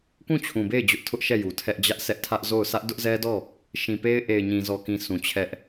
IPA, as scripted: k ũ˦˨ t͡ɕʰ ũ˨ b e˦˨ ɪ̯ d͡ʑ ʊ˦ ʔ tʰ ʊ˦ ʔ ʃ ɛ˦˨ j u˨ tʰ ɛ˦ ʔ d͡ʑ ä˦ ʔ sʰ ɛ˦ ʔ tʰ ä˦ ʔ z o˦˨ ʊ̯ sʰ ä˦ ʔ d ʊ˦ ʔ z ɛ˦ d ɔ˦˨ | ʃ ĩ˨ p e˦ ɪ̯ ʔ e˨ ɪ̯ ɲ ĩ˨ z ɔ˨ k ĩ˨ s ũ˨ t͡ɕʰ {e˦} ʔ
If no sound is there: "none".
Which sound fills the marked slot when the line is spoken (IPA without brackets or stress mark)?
ɛ˦